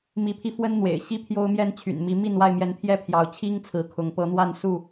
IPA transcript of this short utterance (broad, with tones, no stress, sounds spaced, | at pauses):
m i˨˦ pʰ i˧ f w ə˦ n n̪ w ḛ˨˩ ɪ̯ ɕ i˦ pʰ j o˦ ʊ̯ m j ɛ˦ n t͡ɕʰ y̰˨˩ n m i˨˦ m i˥˨ n w a˥˨ ɪ̯ m j ɛ˨˦ n pʰ j ɛ˦ pʰ j ɑ˨˦ ʊ̯ t͡ɕʰ i˦ ŋ t͡sʰ ɹ̩˨˦ kʰ ʊ˨˦ ŋ p ɤ˨˦ n̪ w a˥˨ n s u˥˨